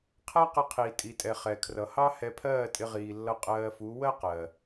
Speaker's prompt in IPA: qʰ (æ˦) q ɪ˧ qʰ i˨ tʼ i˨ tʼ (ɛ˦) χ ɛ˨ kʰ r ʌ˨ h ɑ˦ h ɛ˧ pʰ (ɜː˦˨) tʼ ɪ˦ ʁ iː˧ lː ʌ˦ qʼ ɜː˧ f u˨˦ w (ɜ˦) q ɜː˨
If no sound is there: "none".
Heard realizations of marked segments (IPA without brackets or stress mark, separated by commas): æ˦, ɛ˨, ɜː˦˨, ɜ˦